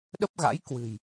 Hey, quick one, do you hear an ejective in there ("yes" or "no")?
no